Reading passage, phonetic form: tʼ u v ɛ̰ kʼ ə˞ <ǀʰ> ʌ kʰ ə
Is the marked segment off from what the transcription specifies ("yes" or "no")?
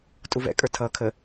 yes